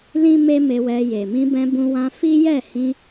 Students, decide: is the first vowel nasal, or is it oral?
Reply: nasal